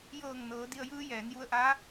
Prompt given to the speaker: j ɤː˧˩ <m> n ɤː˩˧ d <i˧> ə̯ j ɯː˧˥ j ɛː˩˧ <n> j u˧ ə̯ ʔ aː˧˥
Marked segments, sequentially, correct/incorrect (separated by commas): incorrect, correct, correct